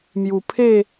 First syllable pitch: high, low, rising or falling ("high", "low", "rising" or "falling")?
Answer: low